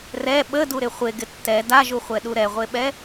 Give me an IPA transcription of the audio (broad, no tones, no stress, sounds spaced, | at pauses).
r ɛ ɓ ə d u ɾ ɪ χʷ e ɡ ɪ tː ɛ d a ʒ u χʷ ɛ ɗ u ɾ ɛ ʁʷ e ɓ ɛ